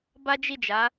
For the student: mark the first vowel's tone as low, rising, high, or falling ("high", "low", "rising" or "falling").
high